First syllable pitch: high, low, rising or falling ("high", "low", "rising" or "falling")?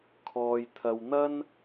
low